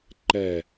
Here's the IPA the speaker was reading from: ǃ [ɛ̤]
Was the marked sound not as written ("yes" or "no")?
yes